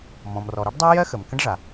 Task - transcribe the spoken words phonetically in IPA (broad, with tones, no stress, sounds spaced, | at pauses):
m ɔ̃˩ m r ɔ˩ ɾ o˥ ɖ dˤ ɜ˥ j ɜ˥ x ə˩ m k ə̃˥ ɖ ʐ a˩